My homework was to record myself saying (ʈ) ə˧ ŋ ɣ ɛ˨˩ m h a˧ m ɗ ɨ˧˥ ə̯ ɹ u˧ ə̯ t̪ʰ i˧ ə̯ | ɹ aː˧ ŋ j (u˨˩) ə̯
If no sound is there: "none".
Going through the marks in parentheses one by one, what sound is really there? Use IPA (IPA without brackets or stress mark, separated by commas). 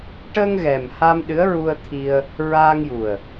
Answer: ʈ, u˨˩